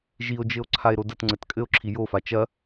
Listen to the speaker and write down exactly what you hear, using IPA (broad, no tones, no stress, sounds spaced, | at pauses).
ʒ i o̯ d͡ʒ ɘ o̯ ǀʰ a e̯ ɾ o d ɐ t ŋ͡ǀ ɘ t kʼ ɘ o̯ ǁʰ i j o f a t͡ʃ ɐ